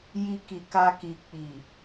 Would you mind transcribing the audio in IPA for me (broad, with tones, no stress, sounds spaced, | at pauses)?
j i˧ k i˨ k a˧ k i˨ k͡p i˨